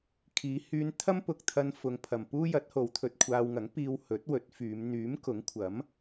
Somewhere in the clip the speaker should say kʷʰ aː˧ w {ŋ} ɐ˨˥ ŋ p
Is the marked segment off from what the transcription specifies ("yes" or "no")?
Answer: no